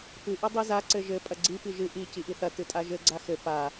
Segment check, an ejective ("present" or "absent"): present